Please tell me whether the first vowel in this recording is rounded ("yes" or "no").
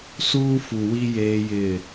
yes